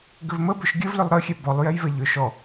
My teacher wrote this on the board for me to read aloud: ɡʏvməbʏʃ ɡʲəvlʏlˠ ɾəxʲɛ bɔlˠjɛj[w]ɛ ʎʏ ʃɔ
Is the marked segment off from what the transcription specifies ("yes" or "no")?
yes